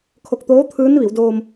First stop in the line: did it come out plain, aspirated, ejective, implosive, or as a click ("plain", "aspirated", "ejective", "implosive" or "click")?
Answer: aspirated